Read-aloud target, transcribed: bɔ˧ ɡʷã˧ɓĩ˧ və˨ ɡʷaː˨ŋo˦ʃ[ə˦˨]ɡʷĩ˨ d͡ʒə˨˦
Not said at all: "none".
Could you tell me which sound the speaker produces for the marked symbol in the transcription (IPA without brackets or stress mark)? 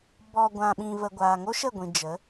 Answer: ə˦˨